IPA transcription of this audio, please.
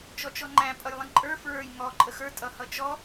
t͡ʃ ɔ t͡ʃ ɔ ŋ͡ǃ æ̃ pʼ ʌ j lˠ ə̃ ǃʼ ə˞ f ɹ ə˞ j ŋ ɔ ǃʼ ə x ə˞ tʼ ʌ h ʌ t͡ʃ ɔ

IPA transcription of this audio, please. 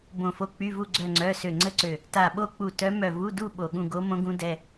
b õ˧˩ f o˧˥˧ k͡p y˧˥˧ v u˥˧ ɡ͡ǀ œ˥˧ ŋ͡ǀ œ˧˥˧ s ø˧˩ ŋ͡ǀ ə˥˧ ǀ ø˧˩ | t a˧˩ ɓ o˥˧ k͡p u˧˩ t œ˧˥ m œ˧˩ v u˧˥˧ d u˥˧ ɓ o˧˩ ɠ ũ˥˧ ɡ o˧˥ m õ˧˥ ɡ ũ˧˥ d ɛ˧˥˧

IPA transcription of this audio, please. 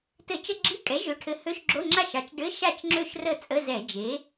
t ɘ˧˩˧ t͡ʃ ə˧˥˧ ɡ͡ǁ i˧˥˧ kʼ ɛ˩˥ ʒ ø˩˥ ʈʰ ɘ˩˥ h ø˧˥˧ ʃ ɡ͡ǁ o˧˥˧ ŋ͡ǁ a˥˩ ʃ ɑ˩˥ t͡ʃ ɖ ɘ˧˥˧ ʃ a˥˩ t͡ʃ ŋ͡ǁ ø˥˩ ʃ r ə˥˩ t͡sʼ ə˧˥˧ z ɛ˧˩˧ d͡ʒ e˩˥

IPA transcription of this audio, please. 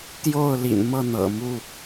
t̪ j o˥˨ ʊ̯ l ḭ˨˩ n m ɤ˥˨ n̪ ɤ̰˨˩ m u˥˨

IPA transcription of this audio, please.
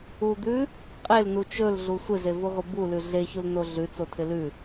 u d̪ ʉ | qʼ e l n u t͡ʃ ɵ l ɮ u sʷ ɪ z e v u ʁʷ ɪ b u l ʉ ɮ e ç u l n o ɮ ʉ t͡s o tʰ ɪ l ʉ

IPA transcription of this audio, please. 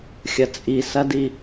xʲ ɐ t͡sʼ i s ɐ d i

